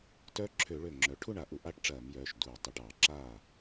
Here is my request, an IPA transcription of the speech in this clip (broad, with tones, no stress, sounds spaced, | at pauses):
t œ˦˥ ǁʰ ø˧˩˧ ɭ ø˧˩ ŋ͡ǁ œ˩˧ ʈʰ u˥˨ ɳ a˧˩˧ ʔ u˧˩˧ ʔ a˥˨ ʈ ʈ͡ʂ ɐː˧˩˧ m j œː˩˧˩ ʃ d uː˧˩ tˤ ə˧˩ ʈ ɑ˧˩˧ ǁ aː˥˨